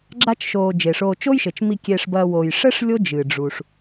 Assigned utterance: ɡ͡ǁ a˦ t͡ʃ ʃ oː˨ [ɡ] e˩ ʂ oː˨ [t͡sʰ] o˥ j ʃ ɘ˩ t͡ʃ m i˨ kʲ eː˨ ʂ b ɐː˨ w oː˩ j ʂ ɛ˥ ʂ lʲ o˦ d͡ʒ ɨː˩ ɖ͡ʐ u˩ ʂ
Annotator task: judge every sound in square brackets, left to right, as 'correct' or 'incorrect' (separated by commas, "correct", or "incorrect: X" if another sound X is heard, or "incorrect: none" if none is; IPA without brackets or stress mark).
incorrect: d͡ʒ, incorrect: t͡ʃ